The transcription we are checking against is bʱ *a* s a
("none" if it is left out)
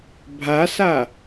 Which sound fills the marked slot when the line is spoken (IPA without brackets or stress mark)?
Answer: a